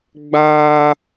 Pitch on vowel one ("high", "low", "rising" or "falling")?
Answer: high